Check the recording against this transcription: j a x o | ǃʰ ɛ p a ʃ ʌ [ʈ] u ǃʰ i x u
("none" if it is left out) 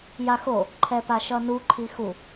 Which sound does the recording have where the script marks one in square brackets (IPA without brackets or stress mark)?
n